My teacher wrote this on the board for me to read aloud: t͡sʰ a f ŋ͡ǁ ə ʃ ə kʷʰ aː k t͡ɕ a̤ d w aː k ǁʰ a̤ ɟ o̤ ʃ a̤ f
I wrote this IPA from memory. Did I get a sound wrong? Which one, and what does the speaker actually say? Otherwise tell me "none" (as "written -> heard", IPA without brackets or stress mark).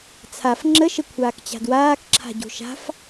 none